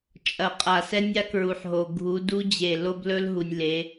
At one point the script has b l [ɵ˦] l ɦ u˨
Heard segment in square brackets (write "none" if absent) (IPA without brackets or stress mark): ɵ˦